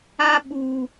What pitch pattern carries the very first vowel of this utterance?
high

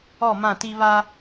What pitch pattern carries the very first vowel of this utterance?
falling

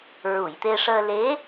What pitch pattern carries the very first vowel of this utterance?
low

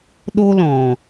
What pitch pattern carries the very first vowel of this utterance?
high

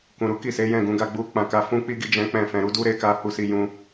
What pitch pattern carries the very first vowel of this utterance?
low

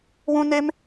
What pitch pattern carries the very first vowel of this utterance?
high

